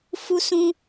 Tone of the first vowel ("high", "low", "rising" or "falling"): high